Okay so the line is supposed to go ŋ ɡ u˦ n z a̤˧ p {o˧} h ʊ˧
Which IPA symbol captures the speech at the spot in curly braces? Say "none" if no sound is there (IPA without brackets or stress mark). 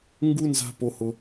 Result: o˧